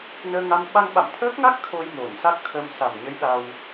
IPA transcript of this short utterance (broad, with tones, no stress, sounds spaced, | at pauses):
n əː˧ ŋ a˧ m ɓ a˧ ŋ ɓ a̰˧˨ m t̪ʰ əː˦˥ k̚ ŋ a˦˥ k̚ t̪ʰ o˧ j m o˧˩ n s a˦˥ k̚ t̪ʰ ə˧ m s a˨˩ m ɲ ə˨˦ j ɗ a˧ w